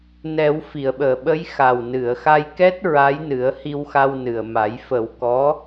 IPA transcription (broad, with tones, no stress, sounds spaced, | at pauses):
n ɛ˨˩˦ w f i˨˩˨ ə̯ ɓ əː˨˩˨ ɓ ə˧˥ j x a˨˩ w n ɨ˨˩˨ ə̯ x a˧ j k ɛ˦˥ t̚ ɹ a˧˥ j n ɨ˨˩˦ ə̯ h i˧ w x a˧ w n ɨ˨˩ ə̯ m a˨˩˦ j f ə˨˩˦ w k ɔ˧˥